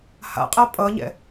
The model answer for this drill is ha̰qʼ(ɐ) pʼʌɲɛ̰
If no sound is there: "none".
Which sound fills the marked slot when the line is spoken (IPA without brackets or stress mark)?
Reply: ɐ